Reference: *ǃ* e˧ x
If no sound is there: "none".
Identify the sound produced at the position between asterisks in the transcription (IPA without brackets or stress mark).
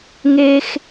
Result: ŋ